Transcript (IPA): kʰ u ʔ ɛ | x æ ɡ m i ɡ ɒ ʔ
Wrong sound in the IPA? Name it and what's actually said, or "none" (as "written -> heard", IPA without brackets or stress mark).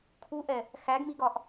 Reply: none